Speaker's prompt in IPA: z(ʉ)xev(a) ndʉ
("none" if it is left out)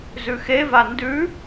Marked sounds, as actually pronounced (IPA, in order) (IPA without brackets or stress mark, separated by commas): ʉ, a